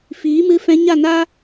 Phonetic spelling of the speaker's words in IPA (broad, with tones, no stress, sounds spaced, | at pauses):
f iː˨˦ m ɨ˧ f ɛ̃˧ ɲ a˦˨ n a˦